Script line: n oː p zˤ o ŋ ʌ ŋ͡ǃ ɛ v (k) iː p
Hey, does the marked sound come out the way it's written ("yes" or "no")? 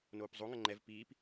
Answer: no